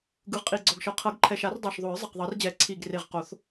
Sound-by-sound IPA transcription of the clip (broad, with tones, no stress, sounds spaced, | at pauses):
ɡ ɯ˨˩ ʁ qʼ i˨˩ ɡ͡ǀ ɔ˨˩ ɡ ʃ ɤ˨˩ qʰ ɤ˨˩˦ ɡ ǃʰ ɛ˨˩ ʃ a˨˩˦ r dˤ ɛ˨˩ ʃ ðˤ o˨˩˦ ɹ zˤ ɛ˨˩ q ðˤ ɤ˨˩˦ r d͡ʑ ɛ˨˩˦ ǀʰ i˨˩ ɡ r e˨˩ ʁ q o˨˩˦ θ